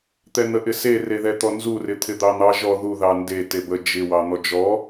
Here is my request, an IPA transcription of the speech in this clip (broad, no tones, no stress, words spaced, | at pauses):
t̪ɛn̪əʔɪse reðɛt̪ɔnzu rɪt̪ʰɪd̪ɑn̪ɑ ʒɔ ðu ðɑnde tebə d͡ʒɪ wɑn̪ɔd͡ʒɔ